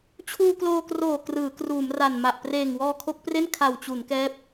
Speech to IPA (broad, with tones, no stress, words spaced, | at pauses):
t͡ɕʰuː˧kloː˧kroː˨˩ krɯː˩˦kruː˩˦m ra˨˩nma˨˩ʔ preː˨˩ŋwɔː˧kʰo˦˥k̚pre˥˩n kʰa˨˩wt͡ɕu˩˦n kɛː˦˥p̚